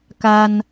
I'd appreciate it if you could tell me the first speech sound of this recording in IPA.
k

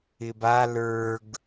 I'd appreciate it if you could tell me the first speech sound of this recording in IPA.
ɪ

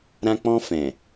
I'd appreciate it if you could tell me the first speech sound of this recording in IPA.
ɾ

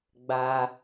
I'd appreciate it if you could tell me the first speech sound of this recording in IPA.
ɡ͡b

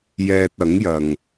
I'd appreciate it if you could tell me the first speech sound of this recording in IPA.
j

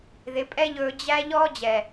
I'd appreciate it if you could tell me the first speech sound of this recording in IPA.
ð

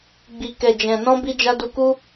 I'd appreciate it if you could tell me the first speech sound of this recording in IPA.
ɡ͡b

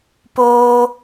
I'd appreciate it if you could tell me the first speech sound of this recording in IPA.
p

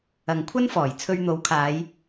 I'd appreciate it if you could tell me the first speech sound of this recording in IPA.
ɐ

